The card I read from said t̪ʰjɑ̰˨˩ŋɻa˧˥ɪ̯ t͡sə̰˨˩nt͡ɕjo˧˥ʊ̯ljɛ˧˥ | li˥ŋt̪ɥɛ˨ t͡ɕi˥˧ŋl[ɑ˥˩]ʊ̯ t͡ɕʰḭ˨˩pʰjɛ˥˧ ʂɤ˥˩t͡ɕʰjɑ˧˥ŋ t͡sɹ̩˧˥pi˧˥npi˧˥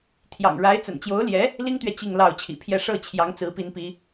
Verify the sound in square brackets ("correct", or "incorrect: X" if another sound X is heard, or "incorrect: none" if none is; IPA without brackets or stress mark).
correct